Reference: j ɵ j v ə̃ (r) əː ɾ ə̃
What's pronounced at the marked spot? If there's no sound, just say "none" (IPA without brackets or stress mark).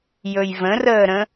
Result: r